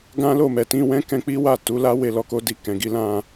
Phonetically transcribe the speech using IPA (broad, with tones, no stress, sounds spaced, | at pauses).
ɡ ã˦ l o˦˨ m ɛ˨ t ĩ˧ w ɛ̃˦ k ɛ̃˧ k͡p i˦ w a˦˨ t u˨˦ l a˦ w e˧ l ɔ˧ k o˦ d i˧ k ɛ̃˨ ɡ i˨˦ l ã˧